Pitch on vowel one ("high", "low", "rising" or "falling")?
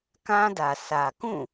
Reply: high